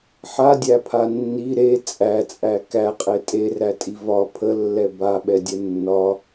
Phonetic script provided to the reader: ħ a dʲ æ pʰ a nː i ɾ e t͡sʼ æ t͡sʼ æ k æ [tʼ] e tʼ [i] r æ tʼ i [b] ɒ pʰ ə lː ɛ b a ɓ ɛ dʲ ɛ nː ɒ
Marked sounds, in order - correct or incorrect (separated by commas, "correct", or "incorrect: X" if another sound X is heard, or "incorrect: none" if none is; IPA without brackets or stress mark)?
incorrect: qʼ, incorrect: e, incorrect: v